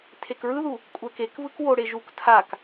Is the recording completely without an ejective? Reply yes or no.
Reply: no